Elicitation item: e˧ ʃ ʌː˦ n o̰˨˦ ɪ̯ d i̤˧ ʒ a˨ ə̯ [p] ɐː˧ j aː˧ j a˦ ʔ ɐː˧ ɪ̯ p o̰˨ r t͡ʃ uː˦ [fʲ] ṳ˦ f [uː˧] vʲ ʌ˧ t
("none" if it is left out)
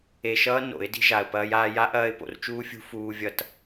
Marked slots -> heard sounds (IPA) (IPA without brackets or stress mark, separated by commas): p, fʲ, uː˧